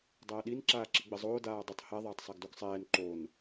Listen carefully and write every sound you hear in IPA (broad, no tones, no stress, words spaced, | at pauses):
dˤɐːɗin ǁaːǁiɡ͡bɘzˤoː daːdˤɘtˤ hɛ ðˤɐːtˤsˤɛɡduɡsˤɛːn ǃon